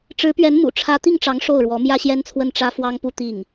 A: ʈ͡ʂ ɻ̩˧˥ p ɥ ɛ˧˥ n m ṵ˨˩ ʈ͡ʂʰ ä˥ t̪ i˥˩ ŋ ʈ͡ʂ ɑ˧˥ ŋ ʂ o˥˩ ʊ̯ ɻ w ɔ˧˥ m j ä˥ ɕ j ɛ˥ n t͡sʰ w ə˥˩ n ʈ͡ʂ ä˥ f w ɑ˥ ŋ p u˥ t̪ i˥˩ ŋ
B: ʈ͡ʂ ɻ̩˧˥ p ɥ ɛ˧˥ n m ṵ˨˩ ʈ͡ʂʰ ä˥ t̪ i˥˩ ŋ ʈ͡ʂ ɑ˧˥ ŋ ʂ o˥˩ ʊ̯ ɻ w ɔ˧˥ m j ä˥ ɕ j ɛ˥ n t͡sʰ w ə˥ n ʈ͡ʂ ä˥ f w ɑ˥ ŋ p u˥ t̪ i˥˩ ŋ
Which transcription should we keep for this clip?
A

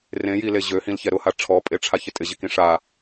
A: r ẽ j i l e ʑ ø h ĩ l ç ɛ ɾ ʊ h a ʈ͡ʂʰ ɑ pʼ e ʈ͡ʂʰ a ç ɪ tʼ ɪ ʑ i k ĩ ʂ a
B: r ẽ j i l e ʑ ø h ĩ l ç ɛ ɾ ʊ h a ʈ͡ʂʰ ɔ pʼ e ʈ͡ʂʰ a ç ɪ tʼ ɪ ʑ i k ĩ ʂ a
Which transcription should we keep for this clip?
B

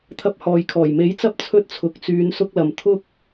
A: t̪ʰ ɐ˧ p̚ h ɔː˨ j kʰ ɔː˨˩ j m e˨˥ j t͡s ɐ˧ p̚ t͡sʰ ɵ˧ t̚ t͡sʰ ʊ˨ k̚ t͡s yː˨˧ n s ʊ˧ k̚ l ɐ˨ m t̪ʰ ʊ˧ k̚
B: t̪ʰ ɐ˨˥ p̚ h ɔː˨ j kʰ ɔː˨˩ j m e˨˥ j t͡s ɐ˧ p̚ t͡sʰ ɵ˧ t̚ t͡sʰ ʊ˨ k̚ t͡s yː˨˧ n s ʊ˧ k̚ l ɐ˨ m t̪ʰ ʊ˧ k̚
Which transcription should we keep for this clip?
B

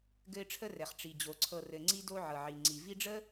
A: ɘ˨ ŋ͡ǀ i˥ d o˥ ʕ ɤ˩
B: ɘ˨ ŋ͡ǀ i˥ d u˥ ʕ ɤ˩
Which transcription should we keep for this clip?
A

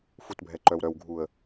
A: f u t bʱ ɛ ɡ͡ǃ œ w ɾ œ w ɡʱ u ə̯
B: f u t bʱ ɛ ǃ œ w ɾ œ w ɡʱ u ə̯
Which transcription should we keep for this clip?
B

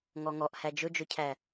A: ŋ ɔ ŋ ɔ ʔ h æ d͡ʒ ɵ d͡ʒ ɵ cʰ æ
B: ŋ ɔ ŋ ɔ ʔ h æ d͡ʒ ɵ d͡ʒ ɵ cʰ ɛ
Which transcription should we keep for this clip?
A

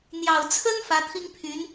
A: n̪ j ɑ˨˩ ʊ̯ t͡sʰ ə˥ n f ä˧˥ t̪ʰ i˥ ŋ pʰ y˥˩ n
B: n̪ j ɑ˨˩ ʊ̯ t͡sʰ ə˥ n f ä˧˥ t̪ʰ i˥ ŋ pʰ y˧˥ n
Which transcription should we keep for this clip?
B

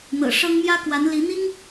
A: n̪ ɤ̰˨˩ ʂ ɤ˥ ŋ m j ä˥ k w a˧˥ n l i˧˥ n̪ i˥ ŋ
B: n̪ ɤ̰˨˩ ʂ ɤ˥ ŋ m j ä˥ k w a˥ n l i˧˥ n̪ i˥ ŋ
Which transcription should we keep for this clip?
A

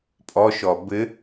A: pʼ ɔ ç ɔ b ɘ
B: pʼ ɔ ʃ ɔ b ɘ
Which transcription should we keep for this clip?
B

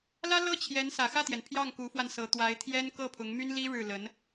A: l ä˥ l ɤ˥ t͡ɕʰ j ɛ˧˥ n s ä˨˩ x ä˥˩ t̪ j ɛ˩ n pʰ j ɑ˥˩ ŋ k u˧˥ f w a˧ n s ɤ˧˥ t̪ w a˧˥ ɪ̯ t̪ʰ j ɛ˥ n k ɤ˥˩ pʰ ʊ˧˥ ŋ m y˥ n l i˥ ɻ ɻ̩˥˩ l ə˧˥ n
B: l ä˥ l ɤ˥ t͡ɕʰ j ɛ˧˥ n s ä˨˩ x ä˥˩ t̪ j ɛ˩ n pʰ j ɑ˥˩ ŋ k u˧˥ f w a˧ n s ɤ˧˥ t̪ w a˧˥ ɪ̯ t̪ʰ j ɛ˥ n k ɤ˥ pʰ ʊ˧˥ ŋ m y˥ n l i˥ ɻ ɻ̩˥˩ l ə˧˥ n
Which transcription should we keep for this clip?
A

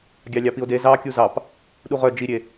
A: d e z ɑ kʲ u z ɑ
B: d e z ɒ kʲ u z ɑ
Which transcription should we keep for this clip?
A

